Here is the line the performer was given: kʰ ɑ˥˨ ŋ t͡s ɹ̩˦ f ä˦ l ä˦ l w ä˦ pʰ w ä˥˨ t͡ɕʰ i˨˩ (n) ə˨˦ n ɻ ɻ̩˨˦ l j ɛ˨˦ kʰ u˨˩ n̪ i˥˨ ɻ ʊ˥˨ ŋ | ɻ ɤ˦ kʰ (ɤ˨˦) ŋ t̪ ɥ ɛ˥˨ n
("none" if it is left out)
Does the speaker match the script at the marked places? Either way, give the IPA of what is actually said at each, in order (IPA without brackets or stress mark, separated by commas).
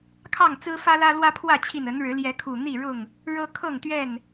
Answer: n, ɤ˥˨